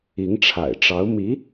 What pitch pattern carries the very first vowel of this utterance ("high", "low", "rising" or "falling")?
rising